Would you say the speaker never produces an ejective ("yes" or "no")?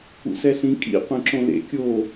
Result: no